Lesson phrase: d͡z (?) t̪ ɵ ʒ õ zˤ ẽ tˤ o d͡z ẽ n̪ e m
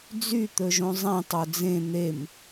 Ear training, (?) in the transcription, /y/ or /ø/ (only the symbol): y